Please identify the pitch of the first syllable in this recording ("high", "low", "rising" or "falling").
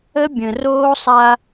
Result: high